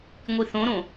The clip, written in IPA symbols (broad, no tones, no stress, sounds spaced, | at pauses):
ŋʷ i θ õ ɾ õ